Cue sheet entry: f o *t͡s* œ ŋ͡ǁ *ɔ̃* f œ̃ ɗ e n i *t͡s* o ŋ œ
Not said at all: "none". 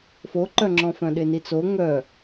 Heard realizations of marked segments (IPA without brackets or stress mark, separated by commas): ǃ, ɔ̃, t͡s